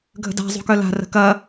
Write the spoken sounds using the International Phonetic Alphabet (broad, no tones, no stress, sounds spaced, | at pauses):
ɡʱ ə̤ d a̤ zˤ ṳ k œ l a̤ r ə̤ k ɐ